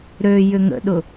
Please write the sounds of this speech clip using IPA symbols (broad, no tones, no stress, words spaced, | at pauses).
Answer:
ɾø jʏŋə̰ɗʊ